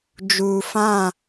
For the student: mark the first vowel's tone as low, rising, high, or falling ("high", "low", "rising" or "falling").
low